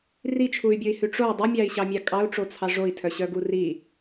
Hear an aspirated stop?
yes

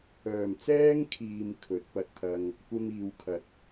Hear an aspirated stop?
yes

